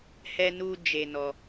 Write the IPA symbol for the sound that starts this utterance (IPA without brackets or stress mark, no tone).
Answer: h